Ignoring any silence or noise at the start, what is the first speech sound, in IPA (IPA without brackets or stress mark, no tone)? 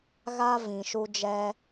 ɣ